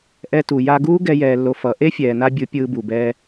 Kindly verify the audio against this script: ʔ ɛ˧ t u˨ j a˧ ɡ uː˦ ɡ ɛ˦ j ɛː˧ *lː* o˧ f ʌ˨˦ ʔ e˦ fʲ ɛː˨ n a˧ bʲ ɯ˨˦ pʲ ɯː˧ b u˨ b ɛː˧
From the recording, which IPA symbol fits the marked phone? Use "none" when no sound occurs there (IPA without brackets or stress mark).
lː